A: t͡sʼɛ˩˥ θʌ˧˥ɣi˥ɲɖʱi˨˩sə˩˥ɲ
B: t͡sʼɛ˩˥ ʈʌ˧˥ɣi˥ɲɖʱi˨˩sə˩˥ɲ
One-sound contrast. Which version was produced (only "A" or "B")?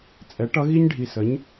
B